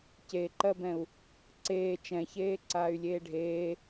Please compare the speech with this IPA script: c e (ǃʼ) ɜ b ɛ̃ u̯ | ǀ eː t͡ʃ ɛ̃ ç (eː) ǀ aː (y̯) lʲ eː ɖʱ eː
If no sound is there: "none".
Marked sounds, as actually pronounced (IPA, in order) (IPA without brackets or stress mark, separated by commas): ǃ, eː, y̯